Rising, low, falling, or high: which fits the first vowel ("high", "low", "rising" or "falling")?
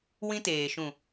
high